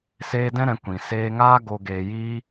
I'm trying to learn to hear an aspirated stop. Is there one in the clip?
no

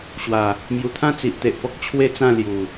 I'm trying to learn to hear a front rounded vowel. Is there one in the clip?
no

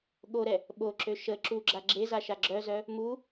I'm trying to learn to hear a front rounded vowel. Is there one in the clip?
yes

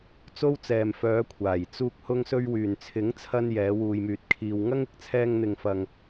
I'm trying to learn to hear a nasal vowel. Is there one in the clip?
no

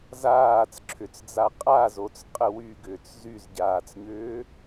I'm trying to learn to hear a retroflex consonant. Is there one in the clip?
no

